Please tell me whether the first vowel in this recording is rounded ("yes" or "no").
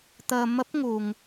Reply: no